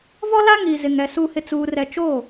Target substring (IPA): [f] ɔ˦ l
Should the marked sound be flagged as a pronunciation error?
yes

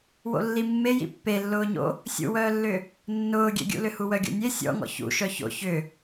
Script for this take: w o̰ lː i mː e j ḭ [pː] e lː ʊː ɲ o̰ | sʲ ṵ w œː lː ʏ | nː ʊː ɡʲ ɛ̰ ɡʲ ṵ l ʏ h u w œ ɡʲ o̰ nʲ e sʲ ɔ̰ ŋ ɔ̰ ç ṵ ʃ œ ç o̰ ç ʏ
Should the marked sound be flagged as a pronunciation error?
no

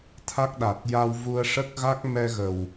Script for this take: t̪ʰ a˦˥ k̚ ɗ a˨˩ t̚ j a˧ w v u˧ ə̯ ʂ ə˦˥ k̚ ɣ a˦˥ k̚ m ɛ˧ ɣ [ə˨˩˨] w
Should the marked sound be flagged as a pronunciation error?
yes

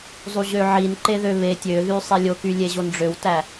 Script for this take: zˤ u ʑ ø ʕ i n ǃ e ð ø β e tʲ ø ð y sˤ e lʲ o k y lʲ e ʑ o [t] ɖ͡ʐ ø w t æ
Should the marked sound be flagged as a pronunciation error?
yes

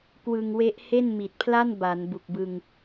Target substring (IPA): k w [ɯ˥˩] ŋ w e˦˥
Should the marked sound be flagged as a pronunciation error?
yes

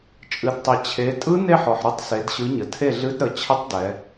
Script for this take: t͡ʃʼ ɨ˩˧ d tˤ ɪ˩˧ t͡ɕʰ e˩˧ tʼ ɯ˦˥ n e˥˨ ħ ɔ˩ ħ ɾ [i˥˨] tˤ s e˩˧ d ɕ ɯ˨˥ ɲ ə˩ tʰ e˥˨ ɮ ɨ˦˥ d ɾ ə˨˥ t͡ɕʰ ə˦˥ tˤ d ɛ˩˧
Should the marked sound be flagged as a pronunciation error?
yes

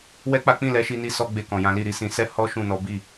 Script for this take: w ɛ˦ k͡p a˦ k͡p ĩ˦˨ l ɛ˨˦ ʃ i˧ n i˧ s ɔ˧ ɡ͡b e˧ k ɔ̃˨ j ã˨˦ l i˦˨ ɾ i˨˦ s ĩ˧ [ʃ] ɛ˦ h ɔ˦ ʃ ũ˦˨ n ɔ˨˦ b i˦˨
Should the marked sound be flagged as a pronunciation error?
yes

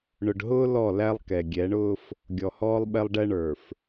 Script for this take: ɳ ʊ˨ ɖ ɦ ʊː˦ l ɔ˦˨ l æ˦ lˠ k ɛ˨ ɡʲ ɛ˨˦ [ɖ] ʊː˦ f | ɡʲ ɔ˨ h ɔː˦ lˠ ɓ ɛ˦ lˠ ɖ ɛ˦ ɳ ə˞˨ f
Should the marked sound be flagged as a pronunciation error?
yes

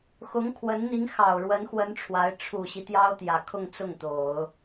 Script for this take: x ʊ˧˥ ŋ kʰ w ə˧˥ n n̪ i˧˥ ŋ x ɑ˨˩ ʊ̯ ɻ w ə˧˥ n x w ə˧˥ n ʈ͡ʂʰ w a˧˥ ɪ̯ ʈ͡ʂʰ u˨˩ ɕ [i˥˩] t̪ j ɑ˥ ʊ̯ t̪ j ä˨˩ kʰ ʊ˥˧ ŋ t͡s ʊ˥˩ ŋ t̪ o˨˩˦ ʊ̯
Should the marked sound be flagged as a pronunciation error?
yes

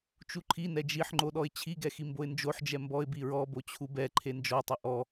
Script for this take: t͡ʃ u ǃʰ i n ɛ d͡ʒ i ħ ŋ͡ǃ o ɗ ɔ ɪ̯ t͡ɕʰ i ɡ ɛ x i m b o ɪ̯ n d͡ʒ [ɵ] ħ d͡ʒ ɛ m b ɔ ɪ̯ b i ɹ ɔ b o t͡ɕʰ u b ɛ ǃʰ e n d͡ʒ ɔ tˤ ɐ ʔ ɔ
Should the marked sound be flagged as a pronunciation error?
yes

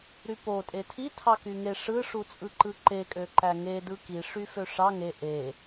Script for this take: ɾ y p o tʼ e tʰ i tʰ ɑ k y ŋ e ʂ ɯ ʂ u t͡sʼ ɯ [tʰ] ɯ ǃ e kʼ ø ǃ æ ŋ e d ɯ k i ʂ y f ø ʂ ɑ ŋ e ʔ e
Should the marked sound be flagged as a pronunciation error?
yes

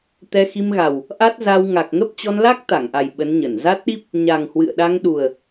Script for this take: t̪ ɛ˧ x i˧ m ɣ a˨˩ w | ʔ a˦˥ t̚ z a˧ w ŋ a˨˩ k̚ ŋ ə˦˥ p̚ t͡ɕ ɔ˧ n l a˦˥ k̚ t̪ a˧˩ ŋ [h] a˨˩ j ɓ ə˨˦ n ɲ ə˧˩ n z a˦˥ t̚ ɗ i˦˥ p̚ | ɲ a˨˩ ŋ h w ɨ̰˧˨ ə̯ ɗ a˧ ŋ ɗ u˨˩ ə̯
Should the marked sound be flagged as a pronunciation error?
yes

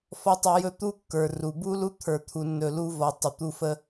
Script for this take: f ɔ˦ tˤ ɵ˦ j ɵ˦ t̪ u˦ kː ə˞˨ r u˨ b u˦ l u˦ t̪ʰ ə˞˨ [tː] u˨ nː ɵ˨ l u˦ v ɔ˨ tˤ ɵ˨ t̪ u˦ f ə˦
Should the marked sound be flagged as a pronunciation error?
yes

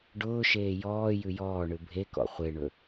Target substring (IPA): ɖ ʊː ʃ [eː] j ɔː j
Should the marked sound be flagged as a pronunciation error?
no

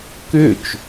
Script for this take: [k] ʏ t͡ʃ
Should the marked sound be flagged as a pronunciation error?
no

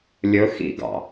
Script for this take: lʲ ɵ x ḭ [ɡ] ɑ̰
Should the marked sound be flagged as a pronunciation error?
no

